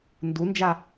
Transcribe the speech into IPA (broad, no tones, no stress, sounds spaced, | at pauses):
n d u n d͡ʒ a